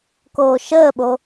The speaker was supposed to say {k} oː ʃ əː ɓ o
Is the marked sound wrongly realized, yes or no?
no